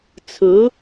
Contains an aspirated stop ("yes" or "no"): yes